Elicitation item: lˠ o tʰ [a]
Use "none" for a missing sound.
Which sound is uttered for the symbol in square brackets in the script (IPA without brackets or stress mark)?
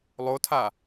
a